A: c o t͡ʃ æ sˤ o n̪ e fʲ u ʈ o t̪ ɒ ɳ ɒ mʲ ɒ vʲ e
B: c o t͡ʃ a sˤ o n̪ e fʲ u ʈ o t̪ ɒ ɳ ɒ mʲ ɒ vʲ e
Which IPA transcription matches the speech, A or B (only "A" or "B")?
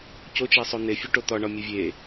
A